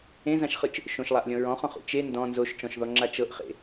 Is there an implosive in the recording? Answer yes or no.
no